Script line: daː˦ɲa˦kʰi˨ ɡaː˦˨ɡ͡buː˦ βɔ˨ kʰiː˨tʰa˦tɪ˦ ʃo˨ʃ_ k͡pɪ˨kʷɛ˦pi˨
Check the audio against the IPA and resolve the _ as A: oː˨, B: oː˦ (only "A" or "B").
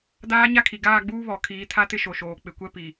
A